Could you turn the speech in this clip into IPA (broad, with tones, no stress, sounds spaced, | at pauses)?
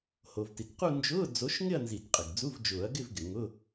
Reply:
h o˩ v t i˩ t q u˥˧ n d͡ʒ ʊː˧˥˧ d͡z o˨˥ ʃ ŋ ɪ˥˧ ɐ̯ n z i˨˩˦ t qʼ ɪ˩ ɡ d͡z u˧˥˧ v d͡ʒ ʊː˨˩˦ ɐ̯ ɡ ɪ˥˧ v ɡ ɪ˩ ŋ ʊ˧˥˧